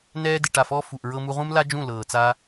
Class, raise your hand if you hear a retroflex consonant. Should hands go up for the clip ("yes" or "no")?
yes